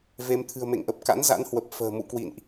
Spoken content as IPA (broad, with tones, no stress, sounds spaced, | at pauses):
v e˧ m t̪ʰ ɨ̤˨˩ ə̯ m ḛ˧˨ ŋ ʔ ə˨˩ p̚ k a̰˧˥ n z a̰˧˥ n h w ə˨˩ p̚ f ə̤ː˨˩ m ṵ˧˨ k w ḭ˧˨ n ʔ